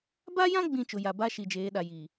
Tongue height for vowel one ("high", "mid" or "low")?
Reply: low